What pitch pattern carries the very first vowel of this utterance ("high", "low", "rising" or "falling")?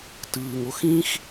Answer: low